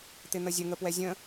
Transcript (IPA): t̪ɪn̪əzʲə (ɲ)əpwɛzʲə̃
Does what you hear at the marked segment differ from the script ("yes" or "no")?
yes